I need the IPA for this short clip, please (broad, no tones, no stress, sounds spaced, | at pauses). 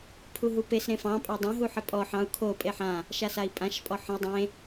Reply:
pʰ u ɦ u p e s ɾ ẽ f ɑ̃ pʼ ɑ dˤ ã ɦ u ħ ə pʼ ɔ ħ ɑ̃ u̯ kʰ o pʼ e ħ ã | ʃ a s a i̯ pʼ ã ʃ pʼ ɔ ħ ə̃ i̯ dˤ ẽ